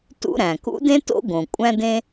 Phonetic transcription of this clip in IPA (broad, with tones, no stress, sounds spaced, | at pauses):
t ṵ˥ ɾ æ̃˩ k ṵ˥ d ẽ˥ t o̰˥ ɡ õ˩ kʷʼ æ̃˥ d ẽ˥